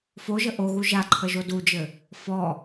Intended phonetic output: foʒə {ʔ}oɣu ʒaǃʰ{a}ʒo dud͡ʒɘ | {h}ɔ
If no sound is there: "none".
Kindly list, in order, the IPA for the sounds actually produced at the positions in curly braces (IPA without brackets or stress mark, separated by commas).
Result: ʔ, ə, f